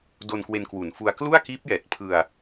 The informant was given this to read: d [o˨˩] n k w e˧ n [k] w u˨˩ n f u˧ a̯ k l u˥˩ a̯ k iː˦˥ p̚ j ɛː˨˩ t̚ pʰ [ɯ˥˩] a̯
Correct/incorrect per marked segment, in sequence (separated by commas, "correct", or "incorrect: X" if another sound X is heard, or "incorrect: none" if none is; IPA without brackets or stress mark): incorrect: o˧, correct, incorrect: ɯ˧